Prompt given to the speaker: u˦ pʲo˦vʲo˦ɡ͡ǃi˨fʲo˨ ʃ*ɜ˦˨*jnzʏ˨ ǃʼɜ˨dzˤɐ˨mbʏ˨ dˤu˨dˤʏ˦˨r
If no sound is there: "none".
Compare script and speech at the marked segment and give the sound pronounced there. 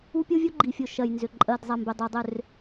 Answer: ɜ˨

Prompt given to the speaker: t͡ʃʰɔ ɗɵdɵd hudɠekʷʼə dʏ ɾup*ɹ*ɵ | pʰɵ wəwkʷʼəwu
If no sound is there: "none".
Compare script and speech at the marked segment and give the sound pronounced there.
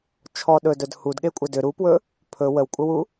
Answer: w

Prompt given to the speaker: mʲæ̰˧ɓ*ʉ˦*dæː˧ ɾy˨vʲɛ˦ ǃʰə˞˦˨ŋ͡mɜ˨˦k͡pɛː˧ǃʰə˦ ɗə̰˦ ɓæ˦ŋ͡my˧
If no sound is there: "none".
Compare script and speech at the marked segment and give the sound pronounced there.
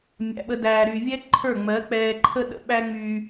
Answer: ə˦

